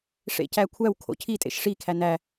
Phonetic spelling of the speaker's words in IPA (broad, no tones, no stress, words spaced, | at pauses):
ʂḛcækʷʰæw kʰo̰cʰi tʼḛʃʂikʰæ næ